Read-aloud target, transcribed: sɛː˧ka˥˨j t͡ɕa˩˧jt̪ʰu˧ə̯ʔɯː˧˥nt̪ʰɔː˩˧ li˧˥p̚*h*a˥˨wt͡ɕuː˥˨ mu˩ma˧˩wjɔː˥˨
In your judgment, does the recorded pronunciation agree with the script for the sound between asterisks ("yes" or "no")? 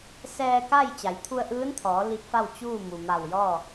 no